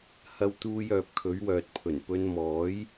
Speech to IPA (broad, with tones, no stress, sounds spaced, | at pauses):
h ɐ˧ w t̪ uː˧ j œː˨ p̚ kʰ ɵ˨˥ ɥ w œː˨ t̚ pʰ ɵ˨˩ n p ɵ˨˧ n m ɔː˨˥ j